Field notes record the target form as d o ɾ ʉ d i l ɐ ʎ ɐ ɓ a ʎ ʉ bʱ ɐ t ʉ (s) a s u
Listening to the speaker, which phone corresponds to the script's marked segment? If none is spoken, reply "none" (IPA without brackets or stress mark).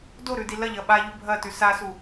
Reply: s